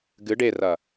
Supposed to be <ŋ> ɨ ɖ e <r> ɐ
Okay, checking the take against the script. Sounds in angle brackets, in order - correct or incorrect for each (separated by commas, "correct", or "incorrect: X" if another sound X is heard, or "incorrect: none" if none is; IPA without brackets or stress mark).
incorrect: ɡ, correct